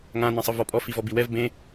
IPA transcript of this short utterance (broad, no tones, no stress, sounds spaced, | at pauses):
ŋ ã n ɛ̃ sˤ ɯ v ɔ pʼ ɔ f i v ɔ b i w ɛ v b ẽ